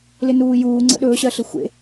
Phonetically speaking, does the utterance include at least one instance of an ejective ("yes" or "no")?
no